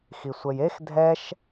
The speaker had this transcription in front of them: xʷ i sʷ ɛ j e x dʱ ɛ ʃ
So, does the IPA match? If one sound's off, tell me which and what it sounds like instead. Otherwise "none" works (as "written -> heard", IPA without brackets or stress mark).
xʷ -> x